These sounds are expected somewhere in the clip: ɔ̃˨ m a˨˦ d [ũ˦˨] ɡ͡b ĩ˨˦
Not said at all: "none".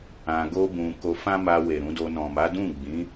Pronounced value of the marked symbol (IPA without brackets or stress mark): ũ˦˨